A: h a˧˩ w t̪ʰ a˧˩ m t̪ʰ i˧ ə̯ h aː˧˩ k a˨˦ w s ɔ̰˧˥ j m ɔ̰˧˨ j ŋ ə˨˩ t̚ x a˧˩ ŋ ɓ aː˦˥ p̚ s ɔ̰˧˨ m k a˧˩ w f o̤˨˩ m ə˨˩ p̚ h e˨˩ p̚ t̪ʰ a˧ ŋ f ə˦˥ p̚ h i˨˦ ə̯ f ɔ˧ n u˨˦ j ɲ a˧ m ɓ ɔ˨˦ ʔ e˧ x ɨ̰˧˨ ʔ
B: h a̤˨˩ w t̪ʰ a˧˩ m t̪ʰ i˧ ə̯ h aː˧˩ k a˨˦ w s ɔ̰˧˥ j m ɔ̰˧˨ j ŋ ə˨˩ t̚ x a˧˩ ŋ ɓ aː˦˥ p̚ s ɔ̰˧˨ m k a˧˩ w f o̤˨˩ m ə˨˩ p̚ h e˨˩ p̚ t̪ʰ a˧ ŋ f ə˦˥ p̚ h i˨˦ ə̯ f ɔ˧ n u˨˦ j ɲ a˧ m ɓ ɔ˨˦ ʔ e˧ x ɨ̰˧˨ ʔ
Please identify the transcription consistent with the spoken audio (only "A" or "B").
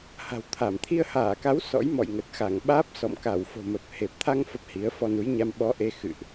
B